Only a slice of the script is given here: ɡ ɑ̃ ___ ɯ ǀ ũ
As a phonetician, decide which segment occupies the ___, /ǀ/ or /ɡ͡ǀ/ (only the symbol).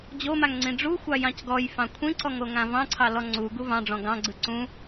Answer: ɡ͡ǀ